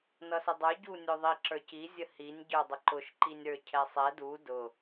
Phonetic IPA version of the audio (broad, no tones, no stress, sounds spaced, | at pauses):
n ʌ s ə dˤ ə˞ ɟ u nʲ ʊ ðˤ i ǁ ə˞ c i zʲ ə h i nʲ ɟ ə˞ dˤ ə ǃ ʊ ʃ ǃ i nʲ ɾ ə˞ cʰ ɛ sˤ ɛ d u d ʊ